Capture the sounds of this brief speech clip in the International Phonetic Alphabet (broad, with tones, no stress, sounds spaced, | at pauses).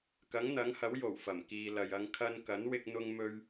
k ɐ˨˥ ŋ n̪ ɐ˨˥ ŋ h ɐ˨˥ w j o˨˩ w f ɐ˨˩ m k iː˨ l ɐ˨ j ɐ˧ ŋ kʰ ɐ˧ n k ɐ˨˥ n w ɪ˧ k̚ n̪ ʊ˧ ŋ m ɵ˧ ɥ